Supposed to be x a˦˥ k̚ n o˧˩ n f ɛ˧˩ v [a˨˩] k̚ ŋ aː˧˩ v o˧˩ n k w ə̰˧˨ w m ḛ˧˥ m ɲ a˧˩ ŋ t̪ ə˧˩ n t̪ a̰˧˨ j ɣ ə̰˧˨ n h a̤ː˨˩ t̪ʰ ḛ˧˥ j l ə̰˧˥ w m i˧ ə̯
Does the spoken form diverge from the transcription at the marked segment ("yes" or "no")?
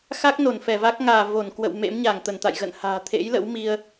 yes